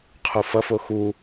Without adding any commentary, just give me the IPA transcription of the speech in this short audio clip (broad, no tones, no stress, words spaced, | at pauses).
qʰufʌfo xu